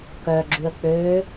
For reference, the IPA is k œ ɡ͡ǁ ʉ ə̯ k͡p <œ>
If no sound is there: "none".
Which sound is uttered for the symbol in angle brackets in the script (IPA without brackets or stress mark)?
ø